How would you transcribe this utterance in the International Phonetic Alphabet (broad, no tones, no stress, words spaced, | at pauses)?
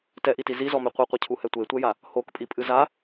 tɛʔiti zizɔme qʷiqʷɐcʰuhɛ tʷetʷɛja | hokpʼipʼɨ za